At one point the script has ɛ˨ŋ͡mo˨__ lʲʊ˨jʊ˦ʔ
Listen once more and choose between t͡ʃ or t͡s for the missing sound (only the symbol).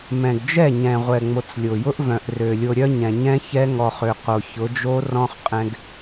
t͡s